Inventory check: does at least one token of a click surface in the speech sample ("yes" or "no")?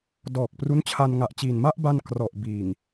no